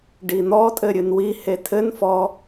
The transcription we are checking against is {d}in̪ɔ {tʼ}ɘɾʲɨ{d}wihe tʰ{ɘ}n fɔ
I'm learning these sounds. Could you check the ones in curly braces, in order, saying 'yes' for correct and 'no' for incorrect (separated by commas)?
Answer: no, yes, no, yes